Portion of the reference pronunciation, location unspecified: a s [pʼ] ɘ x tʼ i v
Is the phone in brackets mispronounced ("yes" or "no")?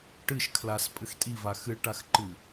no